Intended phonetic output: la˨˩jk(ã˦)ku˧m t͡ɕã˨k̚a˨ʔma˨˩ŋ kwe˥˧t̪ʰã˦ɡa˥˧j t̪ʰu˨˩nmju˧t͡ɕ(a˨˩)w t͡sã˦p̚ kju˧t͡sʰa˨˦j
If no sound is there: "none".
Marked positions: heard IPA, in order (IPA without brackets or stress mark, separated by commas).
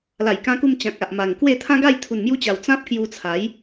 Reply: ã˧, a˨˩